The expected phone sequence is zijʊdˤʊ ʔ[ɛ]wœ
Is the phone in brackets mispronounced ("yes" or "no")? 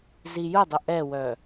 no